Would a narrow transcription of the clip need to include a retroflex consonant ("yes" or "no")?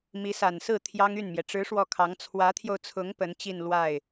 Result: yes